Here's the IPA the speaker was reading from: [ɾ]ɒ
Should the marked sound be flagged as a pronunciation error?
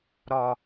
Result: no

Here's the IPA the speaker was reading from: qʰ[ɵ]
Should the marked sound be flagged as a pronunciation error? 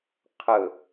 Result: no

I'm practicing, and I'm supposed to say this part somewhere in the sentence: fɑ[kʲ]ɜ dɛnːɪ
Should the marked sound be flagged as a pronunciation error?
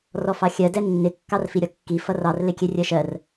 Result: yes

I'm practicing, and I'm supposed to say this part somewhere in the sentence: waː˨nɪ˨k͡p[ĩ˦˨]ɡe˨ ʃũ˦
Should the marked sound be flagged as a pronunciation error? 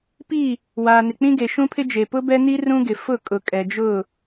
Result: yes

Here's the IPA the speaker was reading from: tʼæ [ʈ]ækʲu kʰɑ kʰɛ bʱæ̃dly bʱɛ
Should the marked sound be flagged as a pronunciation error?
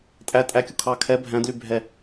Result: yes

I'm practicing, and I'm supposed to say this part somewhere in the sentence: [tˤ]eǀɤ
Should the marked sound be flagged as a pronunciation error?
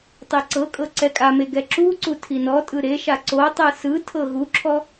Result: no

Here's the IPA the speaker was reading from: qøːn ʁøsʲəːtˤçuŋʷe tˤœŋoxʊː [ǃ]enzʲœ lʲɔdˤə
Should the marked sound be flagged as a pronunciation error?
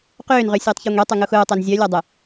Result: yes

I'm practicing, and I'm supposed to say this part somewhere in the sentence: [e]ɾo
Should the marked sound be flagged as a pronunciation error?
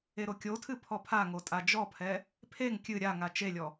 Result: no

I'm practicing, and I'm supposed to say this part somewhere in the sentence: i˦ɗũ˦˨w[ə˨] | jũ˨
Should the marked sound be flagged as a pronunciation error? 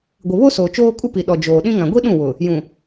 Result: yes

